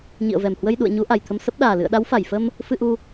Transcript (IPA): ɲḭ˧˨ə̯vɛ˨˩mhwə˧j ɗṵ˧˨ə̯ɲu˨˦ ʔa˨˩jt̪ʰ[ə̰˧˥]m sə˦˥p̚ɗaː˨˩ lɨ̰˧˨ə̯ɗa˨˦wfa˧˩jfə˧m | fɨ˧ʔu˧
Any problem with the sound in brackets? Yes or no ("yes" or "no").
yes